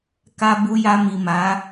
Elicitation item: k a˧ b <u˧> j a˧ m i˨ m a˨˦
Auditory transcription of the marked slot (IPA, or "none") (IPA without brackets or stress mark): u˧